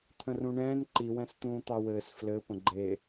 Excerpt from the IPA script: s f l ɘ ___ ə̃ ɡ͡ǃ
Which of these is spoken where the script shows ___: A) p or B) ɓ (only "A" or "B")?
A